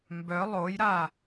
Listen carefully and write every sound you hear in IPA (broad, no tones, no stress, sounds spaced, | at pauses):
m b œ lˠ o j ɾ a